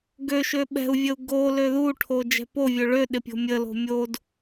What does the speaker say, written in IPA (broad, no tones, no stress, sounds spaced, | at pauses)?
ɡ ø ʃ ø ɓ ɛ̤ u̯ vʲ ə u̯ ɡ o l ø ð u ʈʰ o d͡ʒ ɛ̤ p o vʲ ø ɭ ø ɗ ɪ pʲ o̤ mʲ ə l o̤ mʲ o d